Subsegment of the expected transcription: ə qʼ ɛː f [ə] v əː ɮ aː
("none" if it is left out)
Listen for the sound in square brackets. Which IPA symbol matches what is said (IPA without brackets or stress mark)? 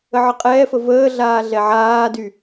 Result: ə